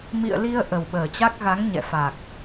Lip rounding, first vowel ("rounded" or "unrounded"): unrounded